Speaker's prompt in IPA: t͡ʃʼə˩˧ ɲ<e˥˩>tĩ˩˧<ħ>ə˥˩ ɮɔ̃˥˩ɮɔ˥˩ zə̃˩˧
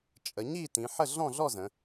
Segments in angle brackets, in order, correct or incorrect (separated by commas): incorrect, correct